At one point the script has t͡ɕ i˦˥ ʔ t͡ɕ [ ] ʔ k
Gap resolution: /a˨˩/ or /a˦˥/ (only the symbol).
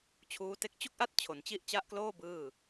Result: a˦˥